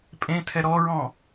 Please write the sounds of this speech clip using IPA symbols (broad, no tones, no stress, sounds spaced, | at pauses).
pʼ ẽ tʰ ɛ ɾ ɔ ɹ ɔ̃